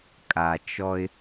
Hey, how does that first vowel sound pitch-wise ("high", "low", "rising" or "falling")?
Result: low